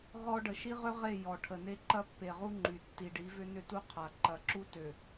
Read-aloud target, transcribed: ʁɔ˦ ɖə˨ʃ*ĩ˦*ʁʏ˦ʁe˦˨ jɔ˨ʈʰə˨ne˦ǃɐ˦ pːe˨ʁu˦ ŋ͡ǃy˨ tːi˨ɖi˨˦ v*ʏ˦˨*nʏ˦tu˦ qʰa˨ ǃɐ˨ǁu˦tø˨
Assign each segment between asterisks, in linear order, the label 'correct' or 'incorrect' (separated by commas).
incorrect, incorrect